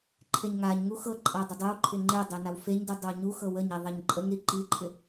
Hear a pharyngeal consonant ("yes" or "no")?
no